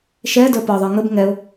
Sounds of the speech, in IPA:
ʃɛː də˞pɒðˤə˞ ŋəb ŋɛʊ̯

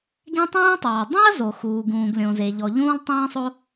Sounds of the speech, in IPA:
ɡẽ˥tˤũː˥tˤɑː˩ dˤĩ˥ɐ̯zo˩xuː˩ɡ ũː˩ɡlʲõ˩ze˩ ʎɔ˩ʎũː˥lˠ tˤĩː˥sˤo˥

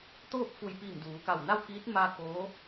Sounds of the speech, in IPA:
t̪oː˥˨p̚fu˧˩jpiː˧˩m duː˩˧ka˧˩wna˥˨w kiː˧˥t̚ ma˧ koː˧˥

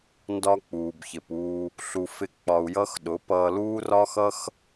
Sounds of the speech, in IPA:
ndɒ˦k͡puː˨bçɪ˨puː˧ | ɬu˧ fɪ˦ k͡pɒ˧u̯jʌ˦xɗʊ˨˦ pʌː˧ luː˦rɒ˦xʌ˦x

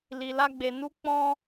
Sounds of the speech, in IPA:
li˧la˦ɡ͡be˧ nu˧k͡pɔ̃˧

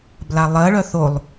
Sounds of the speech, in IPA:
blalˠɜɭœ θolˠ

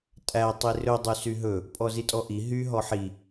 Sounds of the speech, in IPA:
tʼæ tˤirɵ dˤysyɦɵ | pʼɔzitʼɔʔi ɦy ɦɔħi

